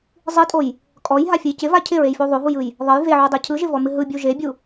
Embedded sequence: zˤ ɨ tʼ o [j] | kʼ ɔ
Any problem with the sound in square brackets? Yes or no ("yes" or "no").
no